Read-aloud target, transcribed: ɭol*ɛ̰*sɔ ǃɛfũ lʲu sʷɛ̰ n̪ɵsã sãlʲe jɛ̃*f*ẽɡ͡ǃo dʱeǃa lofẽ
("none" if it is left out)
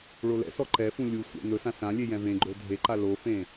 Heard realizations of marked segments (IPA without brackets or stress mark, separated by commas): ɛ̰, v